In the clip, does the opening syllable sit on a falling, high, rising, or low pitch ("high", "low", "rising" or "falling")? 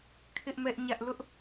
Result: high